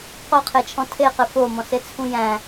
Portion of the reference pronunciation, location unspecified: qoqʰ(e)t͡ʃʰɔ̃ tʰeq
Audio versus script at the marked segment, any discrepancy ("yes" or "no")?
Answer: no